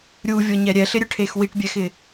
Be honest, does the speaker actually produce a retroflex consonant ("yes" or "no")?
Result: yes